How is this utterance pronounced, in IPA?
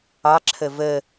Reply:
ɑ ǁʰ ə v ə

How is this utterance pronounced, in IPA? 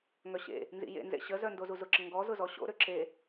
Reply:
ŋ œ ɕ ḛ | n z ḭ j ḛ n z ḛ ɕ ə z œ n d o z u z ʊ ǁ ə ŋ ɡ ɔ z ʊ z ɔ ɕ o̰ ɾ ø ǁ e

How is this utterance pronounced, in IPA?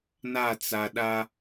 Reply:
n a˦˨ t͡s a˨ ɗ a˦

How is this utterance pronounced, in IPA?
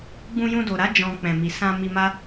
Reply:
ɡ͡b ũ˧ j ũ˧ d o˨ ɾ a˨˦ d͡ʒ ɔ̃˧ k͡p ɛ̃˨ m i˨ s ã˧ m i˧ m a˦

